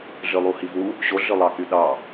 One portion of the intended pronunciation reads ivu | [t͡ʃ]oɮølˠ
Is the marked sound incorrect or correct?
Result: incorrect